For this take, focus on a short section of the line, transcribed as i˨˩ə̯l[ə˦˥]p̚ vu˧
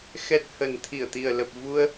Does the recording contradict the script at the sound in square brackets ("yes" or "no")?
yes